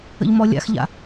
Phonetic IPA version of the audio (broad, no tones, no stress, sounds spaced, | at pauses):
ə̰ ʎ m ɔ lʲ a̰ x ʎ a̰